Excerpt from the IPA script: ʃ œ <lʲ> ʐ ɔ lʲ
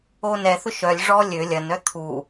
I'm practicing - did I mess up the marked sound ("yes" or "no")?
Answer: no